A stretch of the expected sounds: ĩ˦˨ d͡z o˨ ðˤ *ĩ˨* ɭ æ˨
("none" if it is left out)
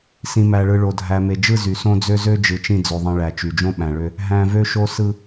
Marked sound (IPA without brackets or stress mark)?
ĩ˨